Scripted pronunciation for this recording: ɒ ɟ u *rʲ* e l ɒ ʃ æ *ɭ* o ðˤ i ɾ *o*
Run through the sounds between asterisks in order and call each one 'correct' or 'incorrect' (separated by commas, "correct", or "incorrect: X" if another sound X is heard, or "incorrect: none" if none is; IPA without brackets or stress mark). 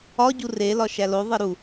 incorrect: r, incorrect: l, incorrect: u